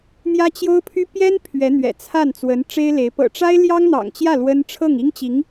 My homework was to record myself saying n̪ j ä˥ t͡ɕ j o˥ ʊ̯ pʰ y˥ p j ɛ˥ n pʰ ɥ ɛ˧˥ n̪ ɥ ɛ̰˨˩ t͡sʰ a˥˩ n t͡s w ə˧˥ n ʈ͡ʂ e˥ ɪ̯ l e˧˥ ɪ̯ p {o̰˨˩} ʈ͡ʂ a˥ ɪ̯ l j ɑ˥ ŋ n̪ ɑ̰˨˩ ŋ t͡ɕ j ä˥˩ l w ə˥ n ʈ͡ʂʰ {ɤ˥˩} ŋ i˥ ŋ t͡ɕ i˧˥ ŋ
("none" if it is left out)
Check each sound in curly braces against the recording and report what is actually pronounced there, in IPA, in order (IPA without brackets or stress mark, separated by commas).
ɤ̰˨˩, ɤ˥˩